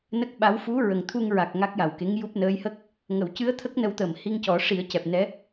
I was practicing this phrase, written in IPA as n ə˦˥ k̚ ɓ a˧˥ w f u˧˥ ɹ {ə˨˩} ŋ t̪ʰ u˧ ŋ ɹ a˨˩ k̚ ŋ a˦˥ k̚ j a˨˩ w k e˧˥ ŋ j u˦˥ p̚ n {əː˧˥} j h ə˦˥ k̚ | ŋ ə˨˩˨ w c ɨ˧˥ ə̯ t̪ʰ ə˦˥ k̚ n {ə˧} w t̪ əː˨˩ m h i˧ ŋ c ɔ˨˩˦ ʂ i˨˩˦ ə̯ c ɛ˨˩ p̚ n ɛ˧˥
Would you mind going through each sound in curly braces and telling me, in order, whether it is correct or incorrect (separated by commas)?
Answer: correct, correct, correct